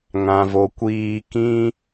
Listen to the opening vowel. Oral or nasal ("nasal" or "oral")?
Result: nasal